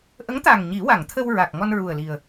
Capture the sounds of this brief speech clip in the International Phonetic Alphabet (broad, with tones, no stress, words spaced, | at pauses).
ʔə˧˥ŋt̪a˨˩ŋ ɲi˨˩˦wa˨˩˨ŋt̪ʰə˧w ɹa˨˩k̚ ŋɔ˧nɹu˨˩ə̯li˨˩ə̯